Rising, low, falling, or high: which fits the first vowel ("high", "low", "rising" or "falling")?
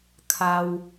low